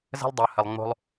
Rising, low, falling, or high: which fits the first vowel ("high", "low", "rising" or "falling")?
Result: high